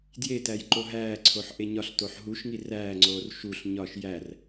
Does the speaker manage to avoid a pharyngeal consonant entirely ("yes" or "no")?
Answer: no